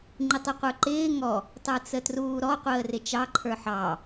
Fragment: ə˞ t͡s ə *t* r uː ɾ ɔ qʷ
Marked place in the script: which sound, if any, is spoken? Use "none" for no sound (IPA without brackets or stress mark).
t